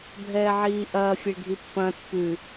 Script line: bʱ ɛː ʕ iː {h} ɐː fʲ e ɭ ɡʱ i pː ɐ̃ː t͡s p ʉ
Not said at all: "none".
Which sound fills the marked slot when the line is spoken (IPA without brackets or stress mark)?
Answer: ʔ